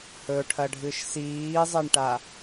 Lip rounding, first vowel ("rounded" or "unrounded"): rounded